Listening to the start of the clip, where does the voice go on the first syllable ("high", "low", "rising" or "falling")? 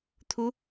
high